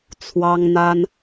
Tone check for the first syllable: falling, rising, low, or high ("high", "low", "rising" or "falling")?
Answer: high